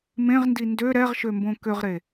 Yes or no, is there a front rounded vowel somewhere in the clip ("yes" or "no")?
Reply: yes